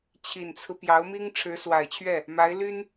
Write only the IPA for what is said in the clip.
t͡ɕʰi˨˩nt͡sʰɹ̩˦pjɑ˧˥ʊ̯mi˥ŋ ʈ͡ʂʰɻ̩˧˥swa˨˩ɪ̯t͡ɕʰɥɛ˥˩ | ma˧˥ɪ̯ly˥n

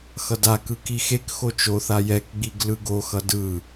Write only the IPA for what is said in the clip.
xʌdakɯ kixekxo t͡ʃoθa jɛkɡ͡biɡ lɯɡoxʌ dɯ

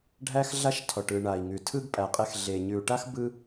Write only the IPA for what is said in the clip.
ɖʱæ˧xɮa˧ʃ tʰɔ˨ʈɯ˨ ɳa˨i̯ŋʉ˨tʰɯ˦ɡ pʼæ˨qʼe˧x ɮe˨ ɲʉ˨u̯ʈa˦x bɯ˦

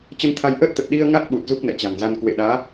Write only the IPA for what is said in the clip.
t͡ɕə˧nt̪ʰa˧jʔəː˦˥t̚t̪ə˨˩t̚ ɗi˧ə̯ ŋa˦˥t̚ɓu˨˩t̚ zu˦˥k̚nɛ̰˧˨t͡ɕa̤˨˩ŋza˧n kwḛ˧˨ɗaː˨˦

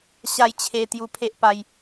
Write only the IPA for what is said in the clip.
ɕa˥˧jt͡ɕʰe˧ t̪ju˧pʰe˦ʔpa˧j

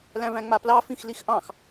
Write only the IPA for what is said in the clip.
læ̃væ̃ŋ͡maplɑ fĩxlixʔɑ̃x

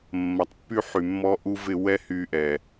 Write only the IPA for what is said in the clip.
mːɐ˨tˤpːy˦ħy˨mːɔ˦ ʔu˦ vɪ˦˨ wɛ˦hy˧ʔɛ˨

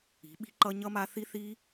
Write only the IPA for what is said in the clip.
i̤˨˦ɓi̤˦ǃʌ˦ ɲʌ˦ma˦ θi˦θi˦

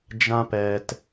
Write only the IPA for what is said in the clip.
d͡ʒã˦pɛ˨t

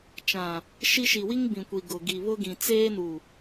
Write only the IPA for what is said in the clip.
t͡ʃã˨ | ʃi˦ ʃi˨wi˦ŋbĩ˨kʷi˨ ɡʊ˨ ɡi˨βʊ˦ɡĩ˨ t͡seː˦nu˨

